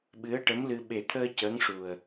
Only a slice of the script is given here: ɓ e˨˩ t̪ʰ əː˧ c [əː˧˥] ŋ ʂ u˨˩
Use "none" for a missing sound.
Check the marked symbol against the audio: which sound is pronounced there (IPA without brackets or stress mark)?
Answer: əː˧˥